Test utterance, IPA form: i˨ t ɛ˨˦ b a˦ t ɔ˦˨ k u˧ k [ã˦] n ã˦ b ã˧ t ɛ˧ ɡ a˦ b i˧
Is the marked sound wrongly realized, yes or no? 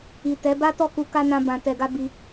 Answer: yes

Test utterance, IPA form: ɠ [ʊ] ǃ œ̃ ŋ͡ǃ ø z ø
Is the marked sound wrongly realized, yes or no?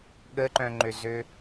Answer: yes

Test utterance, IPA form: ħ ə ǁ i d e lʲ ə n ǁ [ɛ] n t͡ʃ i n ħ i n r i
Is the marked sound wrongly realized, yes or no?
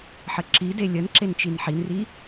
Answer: yes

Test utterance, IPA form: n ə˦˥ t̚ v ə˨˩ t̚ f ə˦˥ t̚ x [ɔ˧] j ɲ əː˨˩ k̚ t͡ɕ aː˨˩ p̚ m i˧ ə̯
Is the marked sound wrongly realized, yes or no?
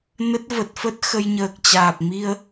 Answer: yes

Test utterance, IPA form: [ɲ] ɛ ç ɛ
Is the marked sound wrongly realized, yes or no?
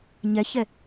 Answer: no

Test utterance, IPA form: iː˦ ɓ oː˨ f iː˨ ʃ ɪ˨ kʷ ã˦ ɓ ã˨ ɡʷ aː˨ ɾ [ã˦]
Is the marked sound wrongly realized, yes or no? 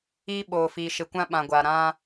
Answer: no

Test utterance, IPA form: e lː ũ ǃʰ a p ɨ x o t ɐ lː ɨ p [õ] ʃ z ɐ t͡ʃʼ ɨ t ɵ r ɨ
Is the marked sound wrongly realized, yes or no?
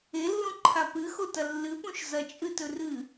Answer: yes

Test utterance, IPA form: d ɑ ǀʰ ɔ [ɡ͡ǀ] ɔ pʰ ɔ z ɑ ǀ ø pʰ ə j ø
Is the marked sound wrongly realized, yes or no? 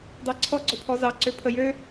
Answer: no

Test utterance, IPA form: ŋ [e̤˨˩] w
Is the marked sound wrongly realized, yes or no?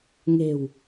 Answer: no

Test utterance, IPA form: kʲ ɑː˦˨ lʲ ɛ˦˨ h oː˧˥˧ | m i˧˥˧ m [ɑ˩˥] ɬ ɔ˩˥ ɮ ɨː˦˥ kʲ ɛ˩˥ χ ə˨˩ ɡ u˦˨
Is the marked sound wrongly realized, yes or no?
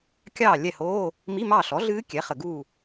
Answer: yes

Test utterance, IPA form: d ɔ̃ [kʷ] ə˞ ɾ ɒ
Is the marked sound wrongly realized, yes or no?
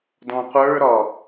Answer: yes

